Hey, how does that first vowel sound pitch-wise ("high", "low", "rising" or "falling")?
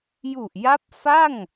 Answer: low